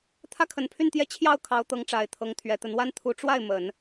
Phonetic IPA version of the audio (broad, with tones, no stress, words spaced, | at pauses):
t̪ʰä˥kʰə˨˩n pʰy˥˧nt̪jɛ˥˧ t͡ɕʰjɑ˥˩ʊ̯kʰɑ˧˥ʊ̯ t̪ɤ˧˥ŋ ʈ͡ʂa˨˩ɪ̯t̪ʰɤ˧˥ŋt̪ʰɥɛ˨˩t̪ə˧˥n wa˥nt̪ʰu˧˥ ʈ͡ʂwa˥˩ɪ̯ mə˨˩˦n